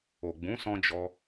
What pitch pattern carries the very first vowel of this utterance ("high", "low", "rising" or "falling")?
low